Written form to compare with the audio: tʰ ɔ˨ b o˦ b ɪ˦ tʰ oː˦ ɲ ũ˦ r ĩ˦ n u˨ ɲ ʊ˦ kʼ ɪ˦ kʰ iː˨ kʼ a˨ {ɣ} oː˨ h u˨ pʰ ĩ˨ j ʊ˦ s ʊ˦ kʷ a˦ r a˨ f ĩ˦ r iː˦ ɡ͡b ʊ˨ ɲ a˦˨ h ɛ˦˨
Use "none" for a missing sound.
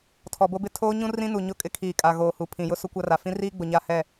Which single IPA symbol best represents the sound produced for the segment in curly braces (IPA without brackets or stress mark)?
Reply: ɣ